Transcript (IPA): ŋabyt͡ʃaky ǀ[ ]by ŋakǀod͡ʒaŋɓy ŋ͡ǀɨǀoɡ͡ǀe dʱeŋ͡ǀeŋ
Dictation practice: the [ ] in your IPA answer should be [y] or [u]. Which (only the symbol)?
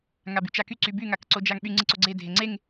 y